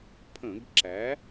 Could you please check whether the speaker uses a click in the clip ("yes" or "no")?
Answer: yes